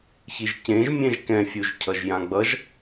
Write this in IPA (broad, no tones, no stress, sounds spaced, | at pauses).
ç i ʒ c ẽ ʒ mʲ ɛ̃ ʒ k ɛ̃ fʲ u ʒ cʰ ʌ ʒ j ã ɡ͡b ʌ ʒ